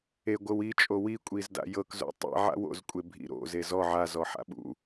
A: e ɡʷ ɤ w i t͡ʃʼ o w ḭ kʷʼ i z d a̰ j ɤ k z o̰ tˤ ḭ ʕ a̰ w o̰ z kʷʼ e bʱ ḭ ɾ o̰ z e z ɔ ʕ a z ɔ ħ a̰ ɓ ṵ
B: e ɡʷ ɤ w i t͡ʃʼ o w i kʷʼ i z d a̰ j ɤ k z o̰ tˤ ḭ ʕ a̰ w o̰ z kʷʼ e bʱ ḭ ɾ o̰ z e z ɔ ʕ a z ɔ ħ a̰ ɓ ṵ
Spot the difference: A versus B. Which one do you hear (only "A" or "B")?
B